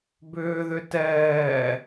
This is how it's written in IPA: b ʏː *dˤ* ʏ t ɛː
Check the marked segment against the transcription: incorrect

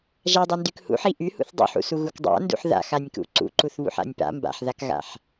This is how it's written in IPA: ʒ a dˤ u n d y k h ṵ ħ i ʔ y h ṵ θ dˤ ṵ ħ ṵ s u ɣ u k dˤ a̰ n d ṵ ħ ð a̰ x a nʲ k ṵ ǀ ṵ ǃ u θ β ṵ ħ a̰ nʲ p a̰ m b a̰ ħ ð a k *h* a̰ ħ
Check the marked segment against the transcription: incorrect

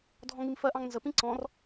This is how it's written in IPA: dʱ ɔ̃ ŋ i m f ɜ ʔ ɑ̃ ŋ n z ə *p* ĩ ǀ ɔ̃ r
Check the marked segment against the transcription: correct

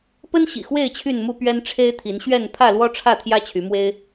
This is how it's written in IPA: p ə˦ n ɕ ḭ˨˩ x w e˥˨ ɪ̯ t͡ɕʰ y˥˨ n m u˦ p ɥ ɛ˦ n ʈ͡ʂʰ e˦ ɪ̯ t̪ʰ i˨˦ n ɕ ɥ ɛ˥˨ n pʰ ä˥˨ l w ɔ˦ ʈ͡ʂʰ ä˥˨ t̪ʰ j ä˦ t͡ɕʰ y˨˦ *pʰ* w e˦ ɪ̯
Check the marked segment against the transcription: incorrect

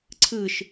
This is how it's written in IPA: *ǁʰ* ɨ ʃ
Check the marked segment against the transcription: incorrect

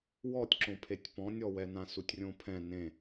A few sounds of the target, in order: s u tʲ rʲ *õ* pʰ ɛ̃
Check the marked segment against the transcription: correct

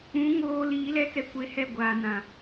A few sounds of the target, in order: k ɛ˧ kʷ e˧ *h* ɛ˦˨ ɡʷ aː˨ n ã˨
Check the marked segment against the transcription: correct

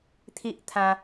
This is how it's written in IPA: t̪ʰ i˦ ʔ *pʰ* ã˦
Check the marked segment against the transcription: incorrect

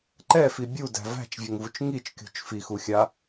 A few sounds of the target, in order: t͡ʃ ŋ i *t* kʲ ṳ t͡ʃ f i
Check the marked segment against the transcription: incorrect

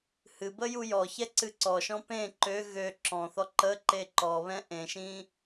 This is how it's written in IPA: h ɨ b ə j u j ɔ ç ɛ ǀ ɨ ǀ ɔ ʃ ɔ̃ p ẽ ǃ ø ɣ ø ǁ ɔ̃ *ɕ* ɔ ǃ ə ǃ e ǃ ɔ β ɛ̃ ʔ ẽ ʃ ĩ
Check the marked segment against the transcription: incorrect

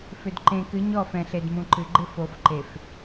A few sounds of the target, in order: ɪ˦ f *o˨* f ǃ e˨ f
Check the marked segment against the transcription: correct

